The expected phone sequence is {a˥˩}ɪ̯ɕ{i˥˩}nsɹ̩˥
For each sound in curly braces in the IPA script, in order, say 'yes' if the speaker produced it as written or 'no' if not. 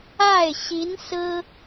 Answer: yes, no

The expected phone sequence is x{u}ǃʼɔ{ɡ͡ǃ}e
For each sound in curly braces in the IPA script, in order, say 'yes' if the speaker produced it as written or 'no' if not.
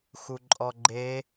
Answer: yes, yes

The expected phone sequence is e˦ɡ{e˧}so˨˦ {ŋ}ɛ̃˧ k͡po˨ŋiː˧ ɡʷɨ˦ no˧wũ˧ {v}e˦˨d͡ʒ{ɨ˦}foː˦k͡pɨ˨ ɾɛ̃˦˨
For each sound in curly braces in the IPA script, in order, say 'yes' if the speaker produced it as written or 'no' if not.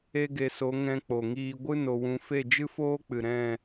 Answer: yes, yes, no, yes

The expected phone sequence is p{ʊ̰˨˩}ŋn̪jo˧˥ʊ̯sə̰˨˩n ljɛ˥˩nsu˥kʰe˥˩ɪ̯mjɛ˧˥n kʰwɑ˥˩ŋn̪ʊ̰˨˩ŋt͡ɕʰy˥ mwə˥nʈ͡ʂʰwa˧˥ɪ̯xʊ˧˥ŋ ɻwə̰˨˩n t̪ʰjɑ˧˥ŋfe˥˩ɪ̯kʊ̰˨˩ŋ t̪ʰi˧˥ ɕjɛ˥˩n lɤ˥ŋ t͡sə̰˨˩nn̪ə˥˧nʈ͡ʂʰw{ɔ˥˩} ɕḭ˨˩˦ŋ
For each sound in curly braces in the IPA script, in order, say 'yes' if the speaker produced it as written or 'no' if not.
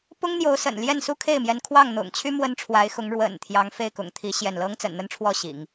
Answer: no, yes

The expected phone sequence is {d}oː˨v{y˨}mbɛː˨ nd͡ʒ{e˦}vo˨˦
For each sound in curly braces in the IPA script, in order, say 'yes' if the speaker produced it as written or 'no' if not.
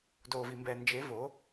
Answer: yes, no, no

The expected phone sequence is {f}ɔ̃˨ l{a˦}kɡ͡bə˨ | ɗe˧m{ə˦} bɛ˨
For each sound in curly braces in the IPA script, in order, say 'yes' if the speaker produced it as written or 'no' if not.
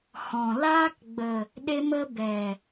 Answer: no, no, no

